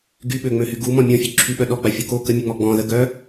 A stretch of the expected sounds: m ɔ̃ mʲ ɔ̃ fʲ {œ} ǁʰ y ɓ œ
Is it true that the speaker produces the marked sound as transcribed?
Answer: no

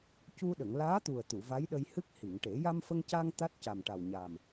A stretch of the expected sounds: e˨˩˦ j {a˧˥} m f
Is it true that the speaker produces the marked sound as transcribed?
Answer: no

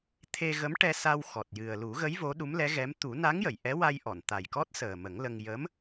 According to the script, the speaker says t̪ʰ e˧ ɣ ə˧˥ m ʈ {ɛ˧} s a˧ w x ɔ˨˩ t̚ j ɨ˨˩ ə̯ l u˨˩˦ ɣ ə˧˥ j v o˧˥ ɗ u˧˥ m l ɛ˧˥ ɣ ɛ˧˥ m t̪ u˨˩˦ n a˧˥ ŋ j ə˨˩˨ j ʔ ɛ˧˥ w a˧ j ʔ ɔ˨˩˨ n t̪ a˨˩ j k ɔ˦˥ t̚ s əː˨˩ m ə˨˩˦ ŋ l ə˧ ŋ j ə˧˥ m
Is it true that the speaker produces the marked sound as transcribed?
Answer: yes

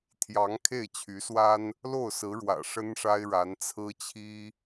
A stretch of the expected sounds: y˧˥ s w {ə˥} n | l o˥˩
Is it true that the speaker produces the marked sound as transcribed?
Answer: no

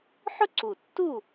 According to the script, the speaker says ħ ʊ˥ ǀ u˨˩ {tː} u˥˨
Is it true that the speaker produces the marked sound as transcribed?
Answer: yes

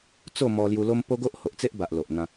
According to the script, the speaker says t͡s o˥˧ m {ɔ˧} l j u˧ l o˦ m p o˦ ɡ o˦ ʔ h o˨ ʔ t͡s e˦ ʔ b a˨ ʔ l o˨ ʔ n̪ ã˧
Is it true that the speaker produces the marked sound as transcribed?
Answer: yes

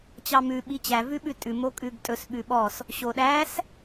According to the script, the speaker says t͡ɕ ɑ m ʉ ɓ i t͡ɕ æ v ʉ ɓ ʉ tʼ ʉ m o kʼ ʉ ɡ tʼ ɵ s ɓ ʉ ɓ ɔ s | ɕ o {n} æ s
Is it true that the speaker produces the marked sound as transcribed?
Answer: no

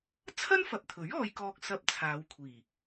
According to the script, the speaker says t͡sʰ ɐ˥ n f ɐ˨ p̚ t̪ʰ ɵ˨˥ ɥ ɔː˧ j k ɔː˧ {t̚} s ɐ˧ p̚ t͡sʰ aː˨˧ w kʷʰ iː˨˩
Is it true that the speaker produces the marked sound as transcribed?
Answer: no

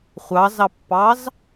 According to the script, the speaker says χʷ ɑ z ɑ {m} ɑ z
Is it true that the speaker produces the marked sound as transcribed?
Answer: no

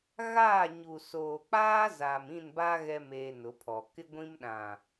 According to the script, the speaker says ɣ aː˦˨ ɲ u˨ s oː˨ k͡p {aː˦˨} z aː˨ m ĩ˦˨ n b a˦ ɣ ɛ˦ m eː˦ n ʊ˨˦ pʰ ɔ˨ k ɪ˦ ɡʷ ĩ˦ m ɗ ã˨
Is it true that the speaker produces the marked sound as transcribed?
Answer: no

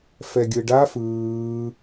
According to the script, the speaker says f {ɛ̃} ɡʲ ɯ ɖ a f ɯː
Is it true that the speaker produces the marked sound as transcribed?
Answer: no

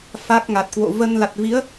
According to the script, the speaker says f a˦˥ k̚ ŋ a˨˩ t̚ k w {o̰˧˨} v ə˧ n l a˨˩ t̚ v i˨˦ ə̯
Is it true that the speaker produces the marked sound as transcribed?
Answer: yes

